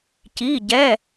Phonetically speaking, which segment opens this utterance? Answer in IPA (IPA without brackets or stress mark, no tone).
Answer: c